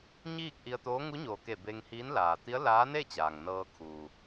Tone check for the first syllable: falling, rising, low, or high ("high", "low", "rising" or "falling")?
falling